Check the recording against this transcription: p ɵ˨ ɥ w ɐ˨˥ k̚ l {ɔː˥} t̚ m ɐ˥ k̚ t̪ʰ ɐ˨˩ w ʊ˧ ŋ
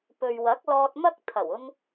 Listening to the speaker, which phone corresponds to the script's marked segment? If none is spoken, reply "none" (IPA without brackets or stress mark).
ɔː˧